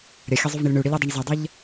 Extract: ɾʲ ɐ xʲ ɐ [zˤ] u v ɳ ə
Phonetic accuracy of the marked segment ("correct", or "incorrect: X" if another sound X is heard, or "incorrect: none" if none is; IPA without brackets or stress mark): correct